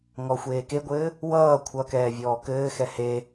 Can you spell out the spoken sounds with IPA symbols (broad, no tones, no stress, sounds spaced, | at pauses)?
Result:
ŋ ɔ xʷ eː k e ɡʷ ɘː | w ʌː kʷʰ ʌ k ɛː vʲ ɔː k ɘː x ɛ h e